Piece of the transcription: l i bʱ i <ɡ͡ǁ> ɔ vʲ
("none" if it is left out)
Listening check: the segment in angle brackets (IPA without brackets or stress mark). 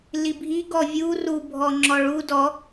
ɡ